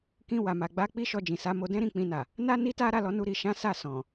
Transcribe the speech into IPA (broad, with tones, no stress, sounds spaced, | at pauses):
k ĩ˧ w a˨ m a˨ ɡ͡b a˧ k͡p i˦ ʃ ɔ˧ d͡ʒ ĩ˨ s a˨˦ m o˧ d ɛ̃˦ ɾ ĩ˦˨ k͡p ĩ˧ n a˨ | n a˦ n i˦ t a˦ ɾ a˦˨ l ɔ˧ n u˧ ɾ i˨ ʃ ã˨˦ s a˦˨ s ɔ̃˨